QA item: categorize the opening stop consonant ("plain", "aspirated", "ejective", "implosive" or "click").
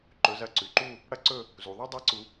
click